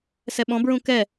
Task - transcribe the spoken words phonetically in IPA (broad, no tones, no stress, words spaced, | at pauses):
sɛɓɔ̃bɹũ kɛ